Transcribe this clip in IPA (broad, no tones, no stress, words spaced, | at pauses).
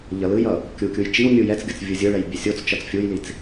ʎʌlɯjʌ | kʲukʲuj t͡ʃiw mʲujɛt͡sɡʲʌt͡s vʲɯzʲɯɭɛj bʲesʲot͡st͡ʃʌt͡s fʲujlit͡s